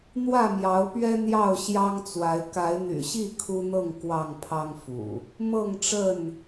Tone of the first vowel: falling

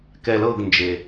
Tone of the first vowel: low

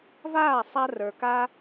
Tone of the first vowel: falling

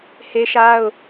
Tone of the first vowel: high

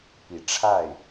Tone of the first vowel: low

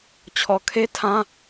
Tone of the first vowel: low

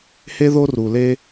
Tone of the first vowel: high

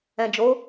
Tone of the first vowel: low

